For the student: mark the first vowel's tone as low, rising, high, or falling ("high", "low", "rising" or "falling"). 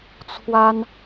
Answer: high